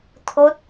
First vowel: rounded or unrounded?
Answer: rounded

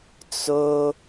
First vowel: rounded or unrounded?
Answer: rounded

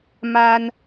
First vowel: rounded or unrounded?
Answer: unrounded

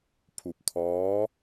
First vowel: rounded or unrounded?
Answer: rounded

